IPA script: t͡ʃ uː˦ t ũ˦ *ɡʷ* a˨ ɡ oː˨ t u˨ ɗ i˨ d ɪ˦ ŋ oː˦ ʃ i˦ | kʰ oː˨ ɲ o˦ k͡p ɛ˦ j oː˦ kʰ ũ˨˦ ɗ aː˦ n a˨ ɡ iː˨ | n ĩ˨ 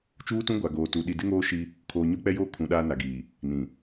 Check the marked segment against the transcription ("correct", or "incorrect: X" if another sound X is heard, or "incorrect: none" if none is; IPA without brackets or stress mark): correct